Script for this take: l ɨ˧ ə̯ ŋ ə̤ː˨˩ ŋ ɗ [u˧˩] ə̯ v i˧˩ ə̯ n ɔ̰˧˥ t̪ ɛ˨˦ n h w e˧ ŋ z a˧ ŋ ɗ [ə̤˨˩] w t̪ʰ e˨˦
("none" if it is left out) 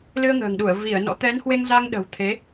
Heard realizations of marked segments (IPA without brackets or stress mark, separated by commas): u˧˩, ə̤˨˩